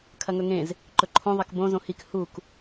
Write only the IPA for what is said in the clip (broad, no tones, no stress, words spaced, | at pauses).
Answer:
kʰɐŋɵŋẽz | ǃɵǃʰõ ðˤɐkbõ zõhik huk